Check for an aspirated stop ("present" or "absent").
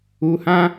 absent